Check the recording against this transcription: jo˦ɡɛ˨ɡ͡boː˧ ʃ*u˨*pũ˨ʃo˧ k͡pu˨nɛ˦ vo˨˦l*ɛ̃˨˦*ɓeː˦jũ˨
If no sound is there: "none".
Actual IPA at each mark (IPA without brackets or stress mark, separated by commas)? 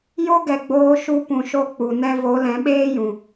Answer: u˧, ɛ̃˨˦